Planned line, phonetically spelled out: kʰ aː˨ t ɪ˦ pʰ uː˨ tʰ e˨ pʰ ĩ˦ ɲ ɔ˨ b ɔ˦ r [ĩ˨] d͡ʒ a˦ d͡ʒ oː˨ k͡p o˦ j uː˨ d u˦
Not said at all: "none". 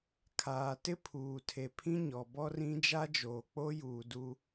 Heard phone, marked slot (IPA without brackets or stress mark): ĩ˦